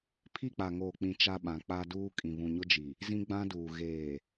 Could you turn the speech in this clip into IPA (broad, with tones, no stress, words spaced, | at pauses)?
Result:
pʰi˦˨k͡pa˨ŋoː˨k͡pĩ˨ t͡ʃa˦ɓã˨˦k͡pa˦duː˦ kʼĩ˨βũ˨ɲʊ˦d͡ʒi˨ | zĩ˦ɡ͡bã˦duː˨ ɣeː˨